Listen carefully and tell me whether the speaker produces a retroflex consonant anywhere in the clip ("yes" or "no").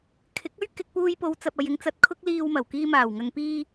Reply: no